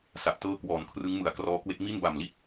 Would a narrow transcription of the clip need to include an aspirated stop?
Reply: yes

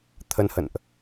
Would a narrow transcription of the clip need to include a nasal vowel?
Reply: no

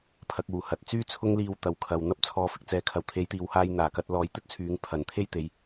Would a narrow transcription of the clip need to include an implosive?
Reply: no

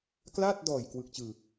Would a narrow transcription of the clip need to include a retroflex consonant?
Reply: no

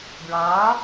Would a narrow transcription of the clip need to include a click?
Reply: no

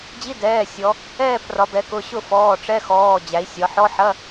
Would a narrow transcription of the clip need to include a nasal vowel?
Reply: no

